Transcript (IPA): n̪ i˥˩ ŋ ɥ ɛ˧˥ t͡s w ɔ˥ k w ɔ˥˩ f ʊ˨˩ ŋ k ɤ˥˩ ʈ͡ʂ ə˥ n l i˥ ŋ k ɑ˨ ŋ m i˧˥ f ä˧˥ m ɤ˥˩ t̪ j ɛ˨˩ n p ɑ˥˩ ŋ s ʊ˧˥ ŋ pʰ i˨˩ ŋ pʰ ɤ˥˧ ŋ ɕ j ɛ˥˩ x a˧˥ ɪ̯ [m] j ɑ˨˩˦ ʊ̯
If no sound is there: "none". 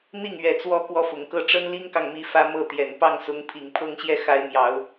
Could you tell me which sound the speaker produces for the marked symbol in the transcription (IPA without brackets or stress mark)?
m